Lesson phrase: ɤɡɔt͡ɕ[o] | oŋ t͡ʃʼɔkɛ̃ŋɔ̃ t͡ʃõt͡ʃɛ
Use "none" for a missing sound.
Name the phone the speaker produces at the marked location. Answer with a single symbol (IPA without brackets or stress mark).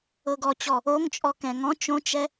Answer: ɔ